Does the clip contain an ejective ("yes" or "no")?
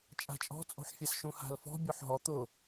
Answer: yes